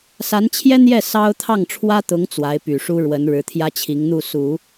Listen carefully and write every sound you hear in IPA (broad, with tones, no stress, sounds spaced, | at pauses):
s a˧˥ n t͡ɕʰ j ɛ˥ n̪ j ɛ˥˩ s ɑ˥ ʊ̯ t̪ʰ ɑ˥˩ ŋ ʈ͡ʂʰ w ä˥ t̪ ʊ˧˥ ŋ t͡s w a˧˥ ɪ̯ p y˨˩ ʂ u˥ ɻ w ə˧˥ n ɻ ɻ̩˧˥ t̪ʰ j ä˥ t͡ɕʰ i˧˥ ŋ n̪ u˥˩ s u˨˩˦